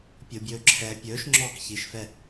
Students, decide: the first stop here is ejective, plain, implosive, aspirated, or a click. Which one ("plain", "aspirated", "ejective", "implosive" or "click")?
plain